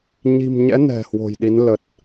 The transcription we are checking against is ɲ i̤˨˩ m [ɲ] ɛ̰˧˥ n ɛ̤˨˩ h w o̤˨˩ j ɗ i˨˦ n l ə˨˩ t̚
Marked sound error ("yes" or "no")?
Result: no